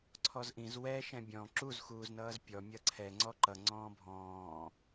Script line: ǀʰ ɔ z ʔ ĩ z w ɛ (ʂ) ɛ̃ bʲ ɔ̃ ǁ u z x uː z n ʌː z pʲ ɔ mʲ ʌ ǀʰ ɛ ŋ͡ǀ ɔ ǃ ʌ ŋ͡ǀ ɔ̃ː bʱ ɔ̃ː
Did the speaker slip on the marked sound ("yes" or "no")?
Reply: yes